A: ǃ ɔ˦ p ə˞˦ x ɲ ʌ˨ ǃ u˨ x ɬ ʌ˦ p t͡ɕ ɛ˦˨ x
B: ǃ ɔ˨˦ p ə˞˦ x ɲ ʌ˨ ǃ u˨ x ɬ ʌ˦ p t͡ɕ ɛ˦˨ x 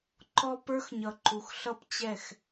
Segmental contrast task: A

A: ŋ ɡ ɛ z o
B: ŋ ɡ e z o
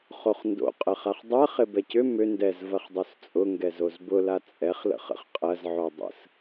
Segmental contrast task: A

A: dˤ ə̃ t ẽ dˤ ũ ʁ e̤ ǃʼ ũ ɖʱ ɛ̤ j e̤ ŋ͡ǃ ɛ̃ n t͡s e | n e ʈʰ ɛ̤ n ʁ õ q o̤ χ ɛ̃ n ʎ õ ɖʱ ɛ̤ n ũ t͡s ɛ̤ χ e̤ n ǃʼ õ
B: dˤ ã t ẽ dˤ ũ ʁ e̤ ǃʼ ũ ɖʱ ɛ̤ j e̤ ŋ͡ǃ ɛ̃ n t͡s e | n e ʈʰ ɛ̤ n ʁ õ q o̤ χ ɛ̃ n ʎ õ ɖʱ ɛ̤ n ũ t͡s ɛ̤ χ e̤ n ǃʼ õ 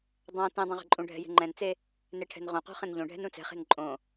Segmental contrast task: B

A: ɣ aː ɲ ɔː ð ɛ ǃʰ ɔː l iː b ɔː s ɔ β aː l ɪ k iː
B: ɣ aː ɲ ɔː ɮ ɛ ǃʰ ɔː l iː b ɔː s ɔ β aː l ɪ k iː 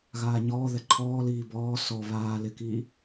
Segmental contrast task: A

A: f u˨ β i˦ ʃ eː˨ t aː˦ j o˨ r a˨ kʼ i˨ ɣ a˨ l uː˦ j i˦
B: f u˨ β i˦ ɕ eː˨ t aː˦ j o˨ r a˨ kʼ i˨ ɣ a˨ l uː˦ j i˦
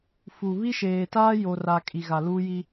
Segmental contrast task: A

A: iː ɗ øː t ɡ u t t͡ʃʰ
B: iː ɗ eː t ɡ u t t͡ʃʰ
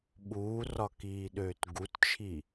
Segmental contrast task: A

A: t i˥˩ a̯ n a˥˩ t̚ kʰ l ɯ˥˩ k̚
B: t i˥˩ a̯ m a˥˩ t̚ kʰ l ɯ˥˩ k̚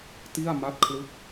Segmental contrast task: B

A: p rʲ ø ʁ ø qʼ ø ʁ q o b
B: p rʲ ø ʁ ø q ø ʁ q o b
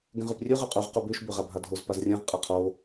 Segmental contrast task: A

